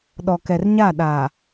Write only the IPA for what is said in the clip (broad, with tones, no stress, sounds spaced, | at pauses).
ɗ ɔ˨ k ɛ˨ r ɲ a˦˨ ɗ a˨